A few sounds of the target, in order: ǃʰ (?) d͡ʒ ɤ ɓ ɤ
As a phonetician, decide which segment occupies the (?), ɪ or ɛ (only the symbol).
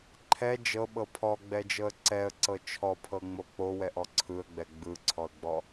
ɛ